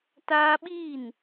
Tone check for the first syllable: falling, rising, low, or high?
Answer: high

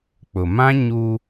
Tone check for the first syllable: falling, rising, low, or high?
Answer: low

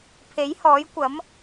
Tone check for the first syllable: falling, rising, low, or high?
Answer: rising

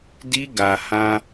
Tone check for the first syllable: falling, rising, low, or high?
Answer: high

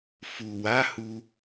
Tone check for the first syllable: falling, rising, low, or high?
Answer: low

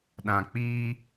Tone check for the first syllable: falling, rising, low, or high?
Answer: low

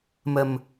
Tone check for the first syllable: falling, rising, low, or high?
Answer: low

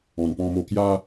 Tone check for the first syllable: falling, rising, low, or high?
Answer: low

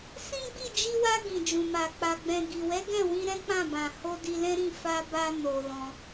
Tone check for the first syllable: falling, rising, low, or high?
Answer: high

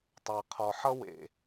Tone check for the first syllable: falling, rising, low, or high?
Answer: low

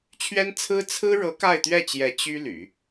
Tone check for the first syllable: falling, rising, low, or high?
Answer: high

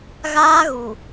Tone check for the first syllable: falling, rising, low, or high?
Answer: high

